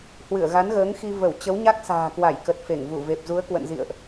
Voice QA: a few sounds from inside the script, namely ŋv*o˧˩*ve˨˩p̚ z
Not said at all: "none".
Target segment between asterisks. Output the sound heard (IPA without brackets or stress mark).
u˧˩